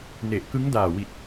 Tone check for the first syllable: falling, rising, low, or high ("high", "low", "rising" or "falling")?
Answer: low